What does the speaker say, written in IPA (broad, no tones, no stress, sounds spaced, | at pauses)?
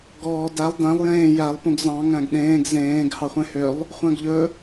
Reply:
ɡ ɔː d æ lˠ d æ̃ lˠ j ẽː j æ lˠ p ũ ɡ z ɑ̃ ŋ æ̃ ɡ ɗ ẽː ɡ z ẽː ɡ h ɑ χʷ ẽ h ø lˠ | χʷ æ̃ ɡ ʎ ɵ